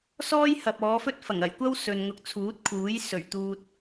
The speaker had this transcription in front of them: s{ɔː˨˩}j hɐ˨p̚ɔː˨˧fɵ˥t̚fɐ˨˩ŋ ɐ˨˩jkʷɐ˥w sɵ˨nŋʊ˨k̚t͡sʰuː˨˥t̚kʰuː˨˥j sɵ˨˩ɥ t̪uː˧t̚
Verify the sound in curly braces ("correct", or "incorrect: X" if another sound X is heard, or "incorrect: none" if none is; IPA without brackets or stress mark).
incorrect: ɔː˥